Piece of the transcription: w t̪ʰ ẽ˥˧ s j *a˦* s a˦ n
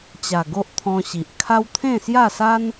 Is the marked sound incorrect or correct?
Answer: incorrect: a˥˧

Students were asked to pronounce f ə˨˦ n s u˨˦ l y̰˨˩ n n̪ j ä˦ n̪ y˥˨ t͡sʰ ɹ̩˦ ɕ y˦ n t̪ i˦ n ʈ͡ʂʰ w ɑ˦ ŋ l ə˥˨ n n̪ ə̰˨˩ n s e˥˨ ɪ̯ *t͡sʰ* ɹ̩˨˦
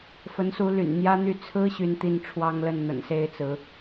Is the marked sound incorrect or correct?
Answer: incorrect: t͡s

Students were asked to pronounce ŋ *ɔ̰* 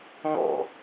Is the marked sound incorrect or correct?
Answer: correct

